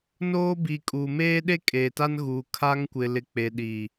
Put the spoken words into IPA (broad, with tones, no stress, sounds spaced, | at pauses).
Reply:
n oː˦ b i˨ kʼ uː˨ m eː˦ ɗ e˦ kʼ eː˨ t a˦ n ɣ uː˨ kʰ a˦ ŋ kʷ ɪ˨ l ɪ˨ k͡p e˨ ɗ iː˨